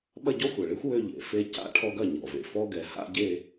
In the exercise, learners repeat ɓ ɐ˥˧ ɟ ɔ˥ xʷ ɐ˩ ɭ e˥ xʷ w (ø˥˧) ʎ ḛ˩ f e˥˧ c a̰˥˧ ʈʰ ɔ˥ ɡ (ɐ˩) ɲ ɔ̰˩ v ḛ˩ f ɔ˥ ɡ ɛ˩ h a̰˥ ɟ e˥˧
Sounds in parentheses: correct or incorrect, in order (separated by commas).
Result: correct, incorrect